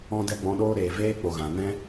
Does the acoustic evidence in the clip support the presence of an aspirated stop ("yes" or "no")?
no